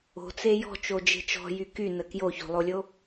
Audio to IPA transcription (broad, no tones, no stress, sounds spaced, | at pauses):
o̤ t͡s e j ɔ̤ t͡ʃ o d͡ʒ e̤ t͡ʃ ɔ̤ j y k y n ə k j o ç o̤ lˠ o lʲ o